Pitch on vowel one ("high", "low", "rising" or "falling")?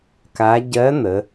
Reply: rising